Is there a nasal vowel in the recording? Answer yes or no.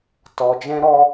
yes